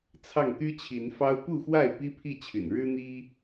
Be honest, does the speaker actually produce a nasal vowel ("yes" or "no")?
no